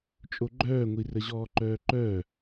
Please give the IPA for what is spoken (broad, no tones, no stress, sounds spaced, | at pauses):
t͡ʃʼ o ɡ͡ǃ œː ŋʷ i r ə ʑ ɔː ǃ œː ǃ œː